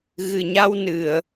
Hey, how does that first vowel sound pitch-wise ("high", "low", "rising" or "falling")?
low